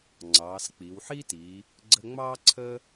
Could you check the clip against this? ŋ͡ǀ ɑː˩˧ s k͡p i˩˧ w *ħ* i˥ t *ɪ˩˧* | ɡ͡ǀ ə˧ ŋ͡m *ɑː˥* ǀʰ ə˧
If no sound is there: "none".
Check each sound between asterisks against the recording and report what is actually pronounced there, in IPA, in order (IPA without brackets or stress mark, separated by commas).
ħ, i˩˧, ɑː˥